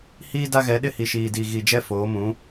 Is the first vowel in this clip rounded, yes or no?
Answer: no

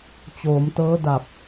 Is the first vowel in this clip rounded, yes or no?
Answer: yes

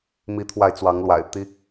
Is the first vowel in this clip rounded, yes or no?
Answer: no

